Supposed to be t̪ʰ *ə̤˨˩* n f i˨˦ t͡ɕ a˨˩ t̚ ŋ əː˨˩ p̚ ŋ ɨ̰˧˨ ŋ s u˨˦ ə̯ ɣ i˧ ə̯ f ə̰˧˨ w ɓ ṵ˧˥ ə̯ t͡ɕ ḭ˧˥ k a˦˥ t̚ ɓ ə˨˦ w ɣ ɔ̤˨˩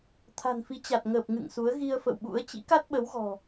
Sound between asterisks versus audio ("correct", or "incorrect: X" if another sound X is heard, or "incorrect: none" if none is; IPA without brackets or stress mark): incorrect: a̤˨˩